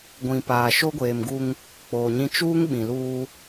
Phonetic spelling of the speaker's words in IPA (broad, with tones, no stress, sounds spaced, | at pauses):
ɡʷ ĩ˨ p aː˨ ʃ o˦ ɡʷ eː˨ m ɡ u˦ ŋ | k͡p oː˨ ɲ ĩ˦ t͡ʃ uː˦ ŋ ɓ ĩ˨ l uː˦